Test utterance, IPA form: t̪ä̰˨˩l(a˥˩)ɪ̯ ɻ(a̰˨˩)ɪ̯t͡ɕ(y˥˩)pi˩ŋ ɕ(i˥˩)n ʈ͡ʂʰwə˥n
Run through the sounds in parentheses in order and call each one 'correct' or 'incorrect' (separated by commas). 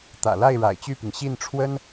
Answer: correct, correct, correct, correct